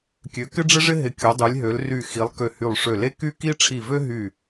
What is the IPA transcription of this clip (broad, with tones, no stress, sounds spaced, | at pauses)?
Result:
kʲ ø˨˦ k ɪ˥ ɖ͡ʐ ɪ˥ ʐ ɪ˥ ɦ ɪ˧˩ kʲ o˨˦ dˤ y˨˦ lʲ ɦ ø˨˦ l r y˧˩ x i˨˦ lˠ k ø˧˩ h y˧˩ lˠ ʂ ø˧˩ l e˥ k y˥ k i˥ ʈ͡ʂʰ i˧˩ v ø˥ ɦ y˧˩